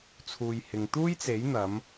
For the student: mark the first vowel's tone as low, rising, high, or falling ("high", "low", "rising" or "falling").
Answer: low